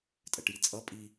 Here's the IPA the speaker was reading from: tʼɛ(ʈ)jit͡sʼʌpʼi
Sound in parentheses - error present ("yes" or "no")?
no